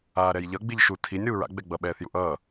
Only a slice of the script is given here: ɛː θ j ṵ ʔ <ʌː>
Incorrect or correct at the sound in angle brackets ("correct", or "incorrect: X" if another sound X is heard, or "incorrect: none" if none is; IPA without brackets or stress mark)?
correct